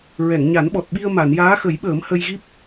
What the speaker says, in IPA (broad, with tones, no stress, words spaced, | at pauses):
ɹɛ˨˩˨ŋɲa˨˩˦nɓɔ˨˩t̚ ɓi˧ə̯ma˨˩˨n jaː˧˥xə˨˩˦jɓəː˨˩˦m hə˧jɣi˦˥p̚